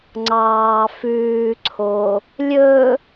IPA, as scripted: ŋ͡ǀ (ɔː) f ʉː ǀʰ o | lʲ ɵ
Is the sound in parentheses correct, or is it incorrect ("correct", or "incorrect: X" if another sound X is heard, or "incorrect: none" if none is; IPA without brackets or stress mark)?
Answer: incorrect: ɑː